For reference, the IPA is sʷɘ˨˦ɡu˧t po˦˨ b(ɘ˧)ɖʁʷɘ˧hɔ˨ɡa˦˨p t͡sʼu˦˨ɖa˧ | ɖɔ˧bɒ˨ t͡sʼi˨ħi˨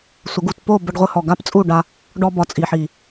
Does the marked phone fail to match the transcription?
no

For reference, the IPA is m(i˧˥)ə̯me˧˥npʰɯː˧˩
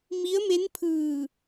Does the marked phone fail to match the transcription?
no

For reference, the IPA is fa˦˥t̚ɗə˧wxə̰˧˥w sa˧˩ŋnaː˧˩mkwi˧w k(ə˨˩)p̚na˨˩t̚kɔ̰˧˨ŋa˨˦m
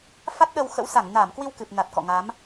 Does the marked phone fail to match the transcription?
yes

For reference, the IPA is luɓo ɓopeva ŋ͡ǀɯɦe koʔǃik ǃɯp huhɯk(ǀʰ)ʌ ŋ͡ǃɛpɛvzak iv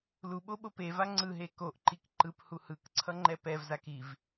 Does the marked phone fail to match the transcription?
no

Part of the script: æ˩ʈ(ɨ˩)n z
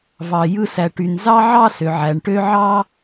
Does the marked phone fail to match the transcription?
yes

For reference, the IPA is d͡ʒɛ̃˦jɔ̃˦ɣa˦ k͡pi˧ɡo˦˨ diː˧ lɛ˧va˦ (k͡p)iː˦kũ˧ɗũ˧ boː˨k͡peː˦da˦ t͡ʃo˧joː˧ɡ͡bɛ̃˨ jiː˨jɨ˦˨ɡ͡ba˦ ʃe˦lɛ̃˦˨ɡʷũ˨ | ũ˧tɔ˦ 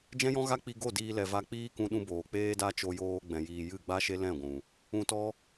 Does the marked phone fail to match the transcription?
no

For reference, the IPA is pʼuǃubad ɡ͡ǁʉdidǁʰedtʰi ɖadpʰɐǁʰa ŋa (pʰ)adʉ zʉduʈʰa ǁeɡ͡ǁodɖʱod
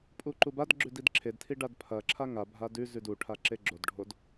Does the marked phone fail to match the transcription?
yes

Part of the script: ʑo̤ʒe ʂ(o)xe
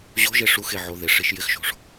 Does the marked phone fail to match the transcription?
yes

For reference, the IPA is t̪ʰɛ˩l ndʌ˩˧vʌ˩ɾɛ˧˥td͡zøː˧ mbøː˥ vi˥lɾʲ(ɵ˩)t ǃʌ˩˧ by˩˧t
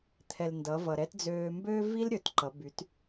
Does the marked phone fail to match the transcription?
no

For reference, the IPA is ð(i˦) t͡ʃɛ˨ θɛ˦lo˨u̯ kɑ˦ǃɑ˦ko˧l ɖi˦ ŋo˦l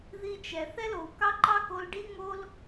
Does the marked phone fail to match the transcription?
no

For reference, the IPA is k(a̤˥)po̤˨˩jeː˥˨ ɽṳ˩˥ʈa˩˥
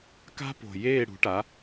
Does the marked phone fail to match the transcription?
no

